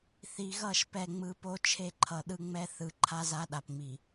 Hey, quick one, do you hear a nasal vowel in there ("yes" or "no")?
no